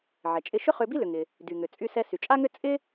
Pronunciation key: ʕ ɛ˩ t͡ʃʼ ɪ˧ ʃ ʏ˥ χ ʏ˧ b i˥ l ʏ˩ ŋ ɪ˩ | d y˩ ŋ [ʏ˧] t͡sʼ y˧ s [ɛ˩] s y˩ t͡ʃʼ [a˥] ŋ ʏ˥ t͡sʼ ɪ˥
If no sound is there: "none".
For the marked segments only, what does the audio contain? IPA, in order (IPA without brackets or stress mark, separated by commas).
ʏ˩, ɛ˧, a˥